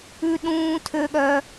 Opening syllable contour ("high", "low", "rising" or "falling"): high